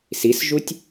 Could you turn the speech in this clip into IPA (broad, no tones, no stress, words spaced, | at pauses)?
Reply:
sisʒutʲ